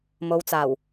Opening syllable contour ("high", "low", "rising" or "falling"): low